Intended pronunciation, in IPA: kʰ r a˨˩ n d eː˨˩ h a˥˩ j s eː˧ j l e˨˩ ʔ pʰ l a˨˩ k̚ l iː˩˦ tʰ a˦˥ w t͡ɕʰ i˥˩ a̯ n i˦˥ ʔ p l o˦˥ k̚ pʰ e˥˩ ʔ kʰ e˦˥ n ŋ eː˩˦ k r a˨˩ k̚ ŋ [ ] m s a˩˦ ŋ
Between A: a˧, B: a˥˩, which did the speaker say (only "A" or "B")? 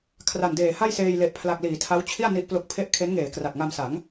A